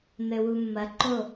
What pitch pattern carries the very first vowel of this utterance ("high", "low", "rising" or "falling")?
low